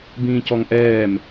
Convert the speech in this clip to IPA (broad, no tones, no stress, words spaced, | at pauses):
bĩːcɔŋʔɛːm